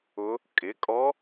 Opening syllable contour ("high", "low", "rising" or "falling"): rising